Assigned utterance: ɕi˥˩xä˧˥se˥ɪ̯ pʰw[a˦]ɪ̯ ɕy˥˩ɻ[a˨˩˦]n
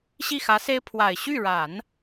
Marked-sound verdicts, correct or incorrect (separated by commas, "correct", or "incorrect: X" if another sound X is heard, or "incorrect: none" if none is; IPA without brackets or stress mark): incorrect: a˨˩, correct